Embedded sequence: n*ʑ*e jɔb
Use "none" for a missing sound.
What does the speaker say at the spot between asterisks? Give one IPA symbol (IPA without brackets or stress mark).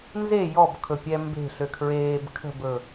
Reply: z